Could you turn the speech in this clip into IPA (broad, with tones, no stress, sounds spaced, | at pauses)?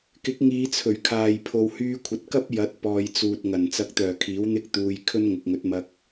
k ɪ˨˥ k̚ ŋ iː˨˧ t͡sʰ ɵ˨˩ ɥ kʰ aː˨ j pʰ o˨ w h yː˧ kʷʰ ɐ˨ t̚ k ɐ˥ p̚ j ɐ˨˥ t̚ p ɔː˨ j t͡s uː˨ t̚ ŋ ɐ˨˩ n t͡s ɐ˨˥ k̚ t̪ œː˨˩ kʰ iː˨˥ w n̪ ɪ˥ k̚ t̪ uː˧ j kʰ ɵ˥ n ŋ ʊ˨ k̚ ŋ ɵ˨˥ t̚ m ɐ˧ k̚